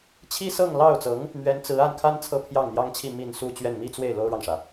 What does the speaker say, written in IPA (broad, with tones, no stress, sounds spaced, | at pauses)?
t͡ɕʰ i˥ s ɤ˥˧ ŋ l ɑ˥˩ ʊ̯ t͡s ɤ˧˥ ŋ | m ɥ ɛ˧˥ n t͡s ɹ̩˧˥ a˥˩ n kʰ a˥ n t͡sʰ ɤ˥ pʰ j ɑ˥˩ ŋ n̪ j ɑ˥ ŋ t͡ɕʰ i˥˧ m i˥˧ n s u˥˧ t͡ɕ ɥ ɛ˥˧ n m i˥˧ t͡s w e˥˩ ɪ̯ l o˥ ʊ̯ ɻ ɑ˨ ŋ ʂ ä˩